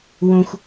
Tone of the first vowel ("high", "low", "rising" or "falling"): high